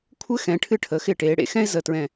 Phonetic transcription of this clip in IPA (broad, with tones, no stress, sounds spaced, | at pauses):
kʷʰ ɘ˥ x ɛ̃˩˧ ʈʰ ɨ˧ ʈʰ ə˩˧ x ɪ˧˩ ʈ eː˩˧ ɽ ḛ˧˩ x ɛ̃˥ ɪ̯ z ə˧˩ t ɹ ɛ̃˧˩